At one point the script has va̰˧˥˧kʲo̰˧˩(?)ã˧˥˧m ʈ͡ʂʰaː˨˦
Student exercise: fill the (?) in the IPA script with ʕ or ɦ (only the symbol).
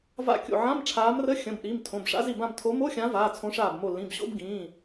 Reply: ʕ